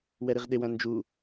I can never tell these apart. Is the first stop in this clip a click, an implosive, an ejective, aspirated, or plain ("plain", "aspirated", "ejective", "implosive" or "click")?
implosive